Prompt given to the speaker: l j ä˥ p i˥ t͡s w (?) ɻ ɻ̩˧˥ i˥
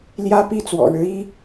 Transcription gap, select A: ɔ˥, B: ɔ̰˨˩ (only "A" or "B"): B